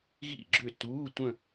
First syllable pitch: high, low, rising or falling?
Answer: falling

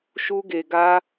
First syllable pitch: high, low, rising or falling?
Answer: high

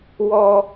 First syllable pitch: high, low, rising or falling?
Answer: high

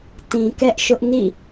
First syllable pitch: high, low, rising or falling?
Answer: low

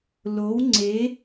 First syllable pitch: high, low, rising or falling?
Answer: rising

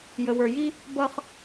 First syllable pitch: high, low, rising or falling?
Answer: low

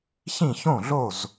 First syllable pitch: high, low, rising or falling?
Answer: falling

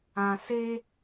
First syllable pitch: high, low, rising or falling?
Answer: low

